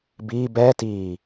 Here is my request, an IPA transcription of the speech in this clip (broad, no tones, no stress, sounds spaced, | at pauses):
b iː b ɛː t iː